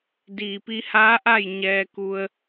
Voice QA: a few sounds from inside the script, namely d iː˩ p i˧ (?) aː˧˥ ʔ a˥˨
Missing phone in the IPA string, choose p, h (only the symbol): h